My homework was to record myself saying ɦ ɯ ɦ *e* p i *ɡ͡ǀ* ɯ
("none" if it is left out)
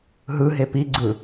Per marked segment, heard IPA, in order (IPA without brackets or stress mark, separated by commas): e, ɡ͡ǀ